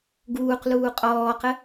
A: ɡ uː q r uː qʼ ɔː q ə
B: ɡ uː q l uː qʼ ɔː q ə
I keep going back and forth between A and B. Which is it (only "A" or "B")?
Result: B